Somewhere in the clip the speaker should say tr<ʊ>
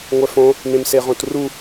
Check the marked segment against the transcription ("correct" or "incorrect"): incorrect